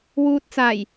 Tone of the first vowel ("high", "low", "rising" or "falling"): low